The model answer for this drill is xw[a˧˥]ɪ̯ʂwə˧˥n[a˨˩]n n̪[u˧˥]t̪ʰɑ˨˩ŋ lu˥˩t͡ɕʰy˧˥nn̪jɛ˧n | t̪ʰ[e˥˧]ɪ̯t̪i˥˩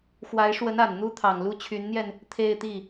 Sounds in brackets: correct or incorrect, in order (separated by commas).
correct, correct, incorrect, correct